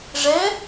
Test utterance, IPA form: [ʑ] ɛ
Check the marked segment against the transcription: incorrect: ʐ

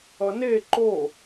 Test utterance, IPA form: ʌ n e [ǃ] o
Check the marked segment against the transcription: correct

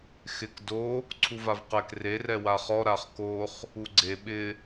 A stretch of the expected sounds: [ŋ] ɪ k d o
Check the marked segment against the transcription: incorrect: x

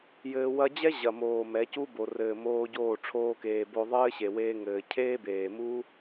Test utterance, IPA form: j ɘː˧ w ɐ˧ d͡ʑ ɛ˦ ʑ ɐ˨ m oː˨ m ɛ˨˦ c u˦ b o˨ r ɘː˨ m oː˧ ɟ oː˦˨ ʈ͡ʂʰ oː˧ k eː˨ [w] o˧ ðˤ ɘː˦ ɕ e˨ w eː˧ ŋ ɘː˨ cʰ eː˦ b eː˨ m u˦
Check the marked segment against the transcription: incorrect: b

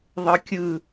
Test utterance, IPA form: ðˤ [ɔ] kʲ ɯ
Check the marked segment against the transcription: incorrect: ɤ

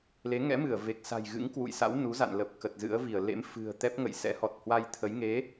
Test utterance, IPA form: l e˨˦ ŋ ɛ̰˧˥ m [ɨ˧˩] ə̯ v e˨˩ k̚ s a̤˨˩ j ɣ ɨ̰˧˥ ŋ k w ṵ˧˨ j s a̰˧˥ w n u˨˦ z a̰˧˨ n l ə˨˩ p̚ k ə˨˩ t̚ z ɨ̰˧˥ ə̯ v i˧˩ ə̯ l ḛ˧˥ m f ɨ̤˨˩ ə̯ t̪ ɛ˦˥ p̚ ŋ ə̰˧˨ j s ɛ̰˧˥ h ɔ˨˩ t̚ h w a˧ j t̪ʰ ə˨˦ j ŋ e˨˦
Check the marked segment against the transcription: correct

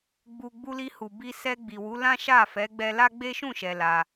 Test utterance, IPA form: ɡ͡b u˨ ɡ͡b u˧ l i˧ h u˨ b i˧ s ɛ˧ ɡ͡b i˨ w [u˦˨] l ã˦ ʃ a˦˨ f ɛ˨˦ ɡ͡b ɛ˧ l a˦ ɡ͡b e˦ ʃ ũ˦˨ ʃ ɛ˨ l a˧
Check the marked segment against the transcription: incorrect: u˨˦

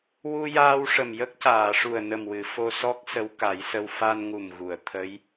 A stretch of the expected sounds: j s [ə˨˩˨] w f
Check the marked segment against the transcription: incorrect: ə˧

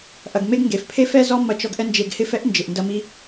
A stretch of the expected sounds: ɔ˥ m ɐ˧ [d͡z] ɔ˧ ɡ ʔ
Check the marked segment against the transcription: incorrect: t͡ʃ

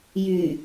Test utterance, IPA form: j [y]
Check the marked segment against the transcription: correct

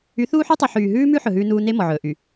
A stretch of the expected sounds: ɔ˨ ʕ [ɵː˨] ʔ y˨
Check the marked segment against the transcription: correct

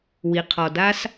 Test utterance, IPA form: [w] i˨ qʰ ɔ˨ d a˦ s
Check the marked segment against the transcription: correct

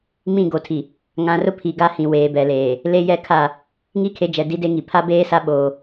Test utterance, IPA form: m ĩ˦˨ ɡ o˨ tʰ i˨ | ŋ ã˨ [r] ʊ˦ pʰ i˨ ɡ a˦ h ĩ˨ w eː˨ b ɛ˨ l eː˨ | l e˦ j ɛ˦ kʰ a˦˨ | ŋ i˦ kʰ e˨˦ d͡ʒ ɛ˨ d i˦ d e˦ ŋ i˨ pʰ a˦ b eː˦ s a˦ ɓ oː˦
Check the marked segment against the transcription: correct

